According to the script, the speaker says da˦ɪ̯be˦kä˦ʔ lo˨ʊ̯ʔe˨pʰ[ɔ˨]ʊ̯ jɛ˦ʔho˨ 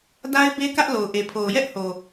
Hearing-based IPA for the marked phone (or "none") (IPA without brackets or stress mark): o˨